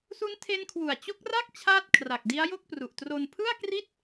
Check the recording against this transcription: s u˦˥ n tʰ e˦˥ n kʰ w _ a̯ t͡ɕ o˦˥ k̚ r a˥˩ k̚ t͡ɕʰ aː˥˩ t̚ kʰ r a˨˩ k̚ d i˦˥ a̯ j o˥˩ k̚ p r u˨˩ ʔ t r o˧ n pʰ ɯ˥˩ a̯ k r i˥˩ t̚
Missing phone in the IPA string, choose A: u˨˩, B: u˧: A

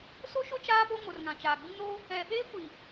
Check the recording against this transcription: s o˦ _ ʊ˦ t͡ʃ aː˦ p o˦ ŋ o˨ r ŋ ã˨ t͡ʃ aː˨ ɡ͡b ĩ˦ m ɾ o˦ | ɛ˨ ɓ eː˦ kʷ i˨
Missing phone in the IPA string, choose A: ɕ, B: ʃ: B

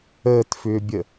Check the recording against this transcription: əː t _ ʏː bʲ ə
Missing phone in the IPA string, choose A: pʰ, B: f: B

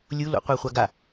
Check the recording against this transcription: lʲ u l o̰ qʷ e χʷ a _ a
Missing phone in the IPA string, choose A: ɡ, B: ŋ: A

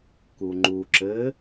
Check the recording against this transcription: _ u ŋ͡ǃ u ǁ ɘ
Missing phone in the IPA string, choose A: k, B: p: A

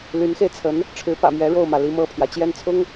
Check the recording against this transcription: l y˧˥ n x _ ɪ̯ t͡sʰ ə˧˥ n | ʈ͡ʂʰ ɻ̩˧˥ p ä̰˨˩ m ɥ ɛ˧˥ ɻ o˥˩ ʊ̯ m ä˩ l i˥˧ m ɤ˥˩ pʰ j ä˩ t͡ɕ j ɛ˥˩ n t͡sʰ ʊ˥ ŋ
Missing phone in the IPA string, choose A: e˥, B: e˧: B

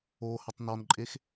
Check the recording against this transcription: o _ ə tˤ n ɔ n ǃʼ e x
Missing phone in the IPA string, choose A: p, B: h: B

